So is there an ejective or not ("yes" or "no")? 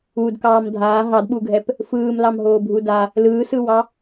no